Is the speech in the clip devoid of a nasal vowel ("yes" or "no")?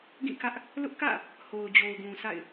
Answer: no